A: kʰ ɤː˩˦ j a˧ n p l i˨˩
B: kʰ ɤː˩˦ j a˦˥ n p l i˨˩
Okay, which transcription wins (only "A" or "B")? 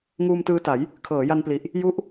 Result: A